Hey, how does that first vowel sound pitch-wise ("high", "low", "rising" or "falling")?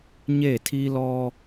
falling